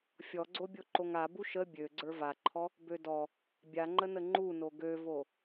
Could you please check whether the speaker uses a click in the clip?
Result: yes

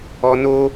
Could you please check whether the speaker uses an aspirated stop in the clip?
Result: no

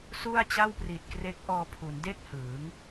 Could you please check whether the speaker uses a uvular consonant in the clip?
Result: no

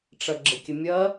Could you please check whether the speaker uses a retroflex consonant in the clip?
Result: yes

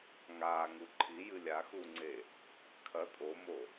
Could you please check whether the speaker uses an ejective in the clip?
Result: yes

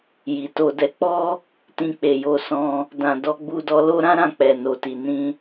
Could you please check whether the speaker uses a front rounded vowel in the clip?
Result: no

